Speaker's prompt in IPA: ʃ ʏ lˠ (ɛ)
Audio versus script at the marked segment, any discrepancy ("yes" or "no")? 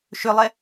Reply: no